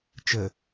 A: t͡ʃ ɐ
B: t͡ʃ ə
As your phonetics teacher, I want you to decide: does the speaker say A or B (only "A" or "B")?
B